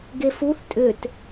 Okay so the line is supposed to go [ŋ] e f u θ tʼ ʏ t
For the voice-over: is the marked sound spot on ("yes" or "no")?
no